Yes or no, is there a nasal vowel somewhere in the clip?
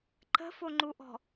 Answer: no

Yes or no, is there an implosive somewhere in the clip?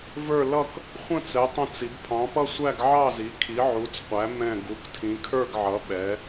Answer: yes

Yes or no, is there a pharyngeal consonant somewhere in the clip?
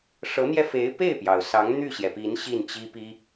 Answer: no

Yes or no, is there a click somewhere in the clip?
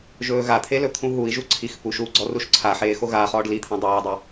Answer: yes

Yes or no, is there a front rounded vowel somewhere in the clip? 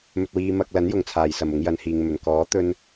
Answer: no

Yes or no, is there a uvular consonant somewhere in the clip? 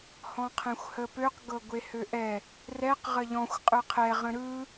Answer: yes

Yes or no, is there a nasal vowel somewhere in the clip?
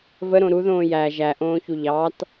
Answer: yes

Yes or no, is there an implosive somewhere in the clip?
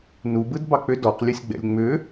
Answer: no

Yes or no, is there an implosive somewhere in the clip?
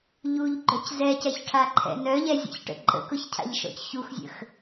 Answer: no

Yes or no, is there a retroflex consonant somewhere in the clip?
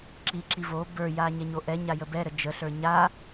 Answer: no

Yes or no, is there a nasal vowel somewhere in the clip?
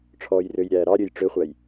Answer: no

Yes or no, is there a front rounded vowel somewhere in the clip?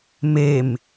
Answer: no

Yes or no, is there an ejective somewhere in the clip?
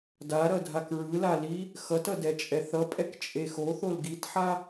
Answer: yes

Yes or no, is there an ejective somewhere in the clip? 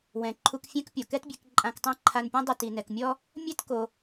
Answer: yes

